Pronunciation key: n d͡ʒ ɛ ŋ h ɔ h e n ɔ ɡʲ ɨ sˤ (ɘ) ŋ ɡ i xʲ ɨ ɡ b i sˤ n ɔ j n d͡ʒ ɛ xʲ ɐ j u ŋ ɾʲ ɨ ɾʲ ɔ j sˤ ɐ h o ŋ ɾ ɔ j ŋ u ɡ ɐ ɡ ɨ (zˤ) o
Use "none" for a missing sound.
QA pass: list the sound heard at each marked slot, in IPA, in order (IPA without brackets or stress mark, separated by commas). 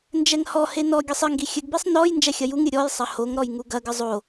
ɘ, zˤ